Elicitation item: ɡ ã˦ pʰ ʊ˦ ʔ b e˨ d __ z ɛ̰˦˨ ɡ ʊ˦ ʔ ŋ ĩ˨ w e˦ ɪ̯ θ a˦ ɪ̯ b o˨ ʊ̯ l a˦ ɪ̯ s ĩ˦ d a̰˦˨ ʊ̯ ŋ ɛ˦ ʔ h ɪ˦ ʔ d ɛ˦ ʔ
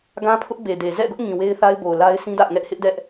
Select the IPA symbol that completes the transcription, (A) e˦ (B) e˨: B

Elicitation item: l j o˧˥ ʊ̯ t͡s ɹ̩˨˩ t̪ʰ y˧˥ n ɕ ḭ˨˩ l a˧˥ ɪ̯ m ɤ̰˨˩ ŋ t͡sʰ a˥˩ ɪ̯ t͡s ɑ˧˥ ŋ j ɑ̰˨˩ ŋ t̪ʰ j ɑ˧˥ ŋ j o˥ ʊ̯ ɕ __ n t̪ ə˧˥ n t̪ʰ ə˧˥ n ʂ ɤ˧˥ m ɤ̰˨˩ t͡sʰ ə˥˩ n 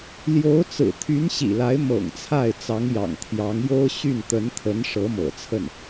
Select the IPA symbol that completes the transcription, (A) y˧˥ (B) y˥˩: B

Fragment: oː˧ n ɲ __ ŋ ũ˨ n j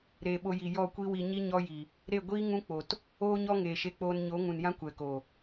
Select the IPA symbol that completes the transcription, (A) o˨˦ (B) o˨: A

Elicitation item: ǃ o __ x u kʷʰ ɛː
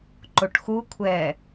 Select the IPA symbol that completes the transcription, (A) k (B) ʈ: B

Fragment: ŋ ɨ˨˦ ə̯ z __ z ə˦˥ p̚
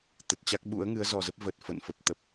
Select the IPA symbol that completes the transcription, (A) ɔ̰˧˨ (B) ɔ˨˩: B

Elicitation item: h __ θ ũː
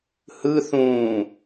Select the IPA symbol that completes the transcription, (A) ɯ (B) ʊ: A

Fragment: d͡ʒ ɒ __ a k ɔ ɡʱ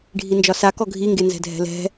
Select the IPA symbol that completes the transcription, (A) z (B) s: B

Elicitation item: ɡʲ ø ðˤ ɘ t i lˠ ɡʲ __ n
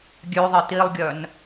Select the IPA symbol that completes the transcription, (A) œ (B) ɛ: A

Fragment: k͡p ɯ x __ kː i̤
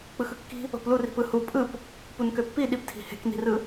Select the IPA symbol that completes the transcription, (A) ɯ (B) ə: A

